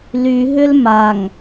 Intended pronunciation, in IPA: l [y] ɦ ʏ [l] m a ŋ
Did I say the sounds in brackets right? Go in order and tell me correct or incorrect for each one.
correct, correct

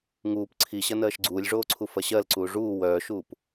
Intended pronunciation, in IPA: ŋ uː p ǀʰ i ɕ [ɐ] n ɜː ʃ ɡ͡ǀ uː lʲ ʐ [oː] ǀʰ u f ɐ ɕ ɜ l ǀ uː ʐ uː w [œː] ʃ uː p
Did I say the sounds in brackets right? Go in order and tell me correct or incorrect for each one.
correct, correct, correct

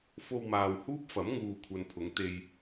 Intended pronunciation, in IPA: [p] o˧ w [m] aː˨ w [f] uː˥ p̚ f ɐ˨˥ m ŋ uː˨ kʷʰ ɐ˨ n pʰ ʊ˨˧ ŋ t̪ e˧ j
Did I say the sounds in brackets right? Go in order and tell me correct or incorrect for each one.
incorrect, correct, incorrect

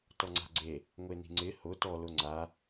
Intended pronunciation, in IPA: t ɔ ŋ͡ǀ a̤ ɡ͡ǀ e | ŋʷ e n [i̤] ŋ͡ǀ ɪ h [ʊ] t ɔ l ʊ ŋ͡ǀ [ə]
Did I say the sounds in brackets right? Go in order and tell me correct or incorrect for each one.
correct, correct, incorrect

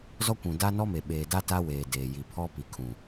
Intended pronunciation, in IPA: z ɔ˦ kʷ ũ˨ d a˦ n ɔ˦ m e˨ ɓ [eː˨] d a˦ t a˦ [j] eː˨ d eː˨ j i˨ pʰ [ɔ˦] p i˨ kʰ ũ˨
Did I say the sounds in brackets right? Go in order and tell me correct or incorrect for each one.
correct, incorrect, correct

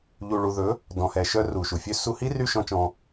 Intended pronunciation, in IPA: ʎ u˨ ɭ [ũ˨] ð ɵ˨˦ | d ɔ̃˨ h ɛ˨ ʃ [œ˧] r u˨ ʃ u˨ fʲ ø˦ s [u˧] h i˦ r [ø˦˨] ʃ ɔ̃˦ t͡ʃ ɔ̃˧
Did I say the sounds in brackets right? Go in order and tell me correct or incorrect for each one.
incorrect, correct, correct, incorrect

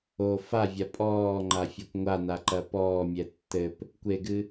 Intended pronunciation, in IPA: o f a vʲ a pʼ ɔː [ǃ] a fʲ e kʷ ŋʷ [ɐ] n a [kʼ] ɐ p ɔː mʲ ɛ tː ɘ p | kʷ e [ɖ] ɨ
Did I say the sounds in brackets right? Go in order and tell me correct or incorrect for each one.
incorrect, incorrect, incorrect, incorrect

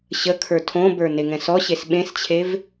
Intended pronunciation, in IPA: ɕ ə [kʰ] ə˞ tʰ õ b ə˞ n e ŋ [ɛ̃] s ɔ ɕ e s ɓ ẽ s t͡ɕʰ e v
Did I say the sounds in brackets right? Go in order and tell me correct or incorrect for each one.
correct, correct

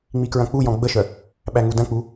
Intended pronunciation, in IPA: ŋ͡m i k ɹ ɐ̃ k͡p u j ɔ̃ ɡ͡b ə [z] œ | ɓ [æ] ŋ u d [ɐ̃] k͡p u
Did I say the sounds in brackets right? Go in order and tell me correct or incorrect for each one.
incorrect, correct, correct

